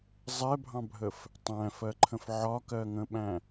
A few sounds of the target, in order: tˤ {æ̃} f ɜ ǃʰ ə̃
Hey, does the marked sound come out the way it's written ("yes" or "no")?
yes